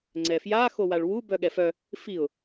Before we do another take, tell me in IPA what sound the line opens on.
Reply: ŋ͡ǀ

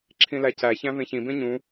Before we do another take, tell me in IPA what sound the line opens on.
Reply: ǁʰ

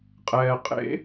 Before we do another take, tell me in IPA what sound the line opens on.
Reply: qʼ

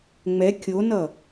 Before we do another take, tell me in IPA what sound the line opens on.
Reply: ŋ͡m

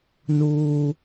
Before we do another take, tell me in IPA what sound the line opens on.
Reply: n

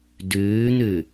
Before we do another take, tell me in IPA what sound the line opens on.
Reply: d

